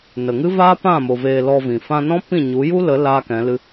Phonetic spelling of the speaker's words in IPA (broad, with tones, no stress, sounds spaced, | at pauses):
n ə˨ ŋ ɨ˦ v aː˦ p ã˦˨ m o˨ v eː˧ l ɔ˧ v ĩ˨ f ã˧ n ɔ̃˦ p ĩ˦˨ ɲ u˨˦ j u˦ l ə˨˦ l aː˦ k ɛ̃˨˦ l ɨ˦